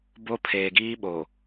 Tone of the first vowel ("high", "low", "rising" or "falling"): high